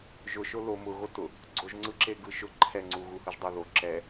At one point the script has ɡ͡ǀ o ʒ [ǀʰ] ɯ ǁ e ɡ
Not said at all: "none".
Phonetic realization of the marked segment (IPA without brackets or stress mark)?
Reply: ŋ͡ǀ